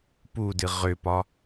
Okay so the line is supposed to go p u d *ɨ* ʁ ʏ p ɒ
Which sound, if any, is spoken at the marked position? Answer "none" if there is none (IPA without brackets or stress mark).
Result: ɨ